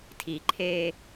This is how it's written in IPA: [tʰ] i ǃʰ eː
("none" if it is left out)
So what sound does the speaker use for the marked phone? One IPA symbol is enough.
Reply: tʰ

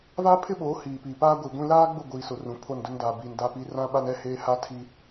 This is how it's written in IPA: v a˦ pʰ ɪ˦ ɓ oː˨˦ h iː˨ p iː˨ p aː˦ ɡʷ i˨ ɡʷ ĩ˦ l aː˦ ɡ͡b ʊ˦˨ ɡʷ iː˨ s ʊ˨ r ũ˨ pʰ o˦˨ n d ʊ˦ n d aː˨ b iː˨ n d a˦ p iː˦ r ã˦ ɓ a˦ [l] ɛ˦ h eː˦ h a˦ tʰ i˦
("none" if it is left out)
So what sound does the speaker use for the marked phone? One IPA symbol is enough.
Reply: n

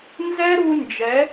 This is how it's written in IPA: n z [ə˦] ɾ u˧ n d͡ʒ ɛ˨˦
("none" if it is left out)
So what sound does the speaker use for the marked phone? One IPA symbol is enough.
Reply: ɛ˦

